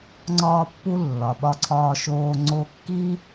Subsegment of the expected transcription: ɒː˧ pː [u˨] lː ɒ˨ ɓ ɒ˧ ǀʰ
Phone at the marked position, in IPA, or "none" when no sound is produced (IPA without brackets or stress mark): u˧